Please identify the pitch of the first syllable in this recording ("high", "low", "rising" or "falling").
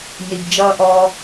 low